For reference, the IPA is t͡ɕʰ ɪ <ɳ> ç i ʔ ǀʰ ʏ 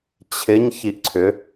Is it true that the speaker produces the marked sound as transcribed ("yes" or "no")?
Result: no